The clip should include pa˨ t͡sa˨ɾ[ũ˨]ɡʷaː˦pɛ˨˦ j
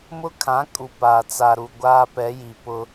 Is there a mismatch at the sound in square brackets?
yes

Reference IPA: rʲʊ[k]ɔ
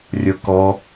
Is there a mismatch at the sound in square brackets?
no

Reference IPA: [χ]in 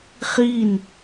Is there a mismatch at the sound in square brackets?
no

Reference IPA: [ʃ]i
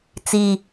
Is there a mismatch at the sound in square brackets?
yes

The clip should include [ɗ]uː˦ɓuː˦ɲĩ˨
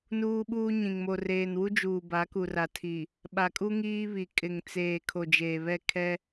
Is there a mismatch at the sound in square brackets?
yes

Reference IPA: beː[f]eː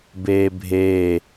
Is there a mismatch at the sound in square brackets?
yes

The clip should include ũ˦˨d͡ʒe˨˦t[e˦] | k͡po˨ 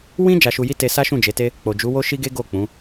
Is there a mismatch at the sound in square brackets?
no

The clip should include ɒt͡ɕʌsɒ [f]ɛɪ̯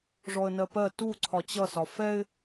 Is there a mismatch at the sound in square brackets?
no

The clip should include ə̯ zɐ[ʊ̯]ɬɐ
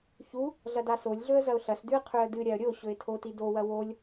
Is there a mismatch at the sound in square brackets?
no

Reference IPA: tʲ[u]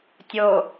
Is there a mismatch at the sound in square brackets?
yes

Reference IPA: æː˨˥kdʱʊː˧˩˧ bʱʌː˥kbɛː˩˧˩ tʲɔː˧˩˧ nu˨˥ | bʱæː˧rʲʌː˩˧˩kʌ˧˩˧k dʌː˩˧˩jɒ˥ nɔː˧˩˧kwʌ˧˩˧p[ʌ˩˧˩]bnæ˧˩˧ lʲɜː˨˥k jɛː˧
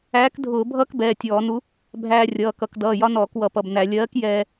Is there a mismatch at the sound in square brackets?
no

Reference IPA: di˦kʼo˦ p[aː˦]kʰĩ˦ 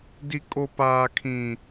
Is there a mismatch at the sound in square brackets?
no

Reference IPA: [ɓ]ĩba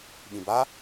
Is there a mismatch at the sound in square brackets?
no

